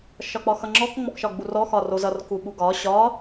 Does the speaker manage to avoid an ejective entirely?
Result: yes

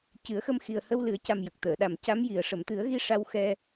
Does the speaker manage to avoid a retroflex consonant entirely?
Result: no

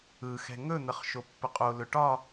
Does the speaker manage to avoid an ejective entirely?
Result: no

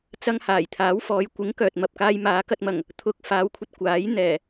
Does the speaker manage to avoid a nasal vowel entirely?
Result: yes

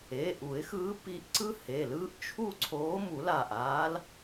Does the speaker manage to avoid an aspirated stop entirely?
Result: no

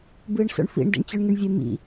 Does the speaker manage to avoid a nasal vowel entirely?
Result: yes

